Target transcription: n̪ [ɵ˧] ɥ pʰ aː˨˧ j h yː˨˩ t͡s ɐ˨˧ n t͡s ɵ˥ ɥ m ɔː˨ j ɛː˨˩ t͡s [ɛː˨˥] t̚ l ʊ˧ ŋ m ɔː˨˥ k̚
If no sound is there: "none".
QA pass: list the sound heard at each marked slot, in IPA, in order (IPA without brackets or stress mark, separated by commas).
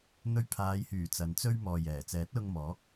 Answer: ɵ˧, ɛː˨˥